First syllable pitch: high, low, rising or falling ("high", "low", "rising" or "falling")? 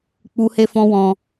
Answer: high